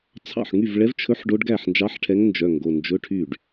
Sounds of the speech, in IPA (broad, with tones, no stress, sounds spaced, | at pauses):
t͡sʰ ɑ̰˥˩ ħ ŋ y˥˩ v ɭ ɛ˧˥ v t͡ʃʰ ɵ˧˥ ħ ɖ o˧˥ ɖ ɡ æ˥˩ ħ n d͡ʒ ɑ˧˥ ħ ʈʰ ɛ˧˥ ŋ n d͡ʒ œ˩˧˩ ŋ ɡ o˩˧˩ n d͡ʒ ɵ˧˥˧ ʈʰ y˥˩ ɖ